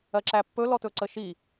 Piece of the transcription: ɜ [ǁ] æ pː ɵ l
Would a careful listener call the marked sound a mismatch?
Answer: no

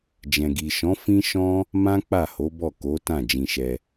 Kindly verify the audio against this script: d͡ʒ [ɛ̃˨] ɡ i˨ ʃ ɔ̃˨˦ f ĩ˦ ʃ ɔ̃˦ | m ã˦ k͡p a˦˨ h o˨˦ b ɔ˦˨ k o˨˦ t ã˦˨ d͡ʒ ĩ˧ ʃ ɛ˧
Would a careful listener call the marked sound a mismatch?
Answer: no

